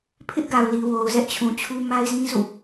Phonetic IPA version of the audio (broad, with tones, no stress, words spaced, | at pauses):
pʰɪ˦ʔɡa˨ʊ̯li˨wo˨ʊ̯ zɛ˦ʔt͡ɕʰũ˨t͡ɕʰu˦ ma˦ɪ̯zĩ˦ zṵ˦˨